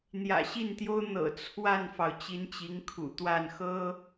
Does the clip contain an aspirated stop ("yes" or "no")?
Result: yes